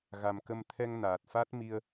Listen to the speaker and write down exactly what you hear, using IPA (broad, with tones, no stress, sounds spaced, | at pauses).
ɣ a˨˩ m k ə˧ m t̪ʰ ɛ˧ ŋ n aː˨˩ t̚ f a˦˥ t̚ m i˧ ə̯